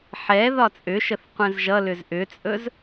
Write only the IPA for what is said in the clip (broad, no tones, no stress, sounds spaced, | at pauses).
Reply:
ħ ɛ ð ɒ t͡sʼ ʏ ʃ ə θ qʷ ɛ̃ z ʒ ʌ l ʏ z ʔ ʏ t͡sʼ ɵ z